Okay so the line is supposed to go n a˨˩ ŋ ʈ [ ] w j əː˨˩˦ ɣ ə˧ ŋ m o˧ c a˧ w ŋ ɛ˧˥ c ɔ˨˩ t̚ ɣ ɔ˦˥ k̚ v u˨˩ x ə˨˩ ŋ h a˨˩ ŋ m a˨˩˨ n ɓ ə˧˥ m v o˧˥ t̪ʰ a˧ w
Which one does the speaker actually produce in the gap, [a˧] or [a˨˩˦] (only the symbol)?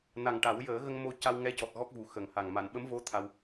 a˨˩˦